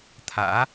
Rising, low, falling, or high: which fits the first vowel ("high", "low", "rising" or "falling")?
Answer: rising